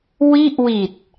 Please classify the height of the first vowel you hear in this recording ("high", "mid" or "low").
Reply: high